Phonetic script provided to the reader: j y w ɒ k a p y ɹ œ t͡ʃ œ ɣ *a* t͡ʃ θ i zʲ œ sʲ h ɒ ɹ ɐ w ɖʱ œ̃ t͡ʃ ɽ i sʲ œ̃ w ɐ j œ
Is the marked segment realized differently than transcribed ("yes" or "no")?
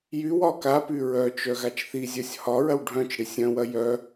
no